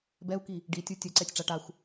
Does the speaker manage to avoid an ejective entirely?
yes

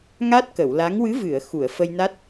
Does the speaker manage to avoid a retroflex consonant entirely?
yes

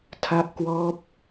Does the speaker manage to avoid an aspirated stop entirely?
no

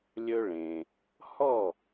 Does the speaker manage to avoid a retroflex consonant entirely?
no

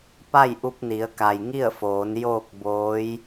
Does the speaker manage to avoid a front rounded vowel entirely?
yes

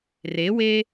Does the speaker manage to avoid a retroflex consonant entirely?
yes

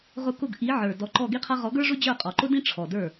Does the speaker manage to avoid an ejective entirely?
no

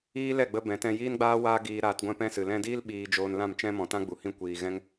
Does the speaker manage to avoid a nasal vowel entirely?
no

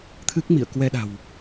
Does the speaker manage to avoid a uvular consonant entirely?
yes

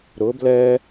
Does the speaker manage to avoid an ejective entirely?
yes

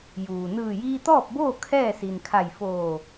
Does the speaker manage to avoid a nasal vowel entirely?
yes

